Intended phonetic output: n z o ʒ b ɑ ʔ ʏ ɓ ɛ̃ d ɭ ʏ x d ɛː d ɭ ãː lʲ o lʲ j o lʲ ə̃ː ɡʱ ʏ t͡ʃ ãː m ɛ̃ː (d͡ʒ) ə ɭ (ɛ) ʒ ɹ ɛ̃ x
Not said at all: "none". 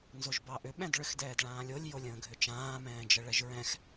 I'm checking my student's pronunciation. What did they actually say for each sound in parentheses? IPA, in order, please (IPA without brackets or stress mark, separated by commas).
d͡ʒ, ɛ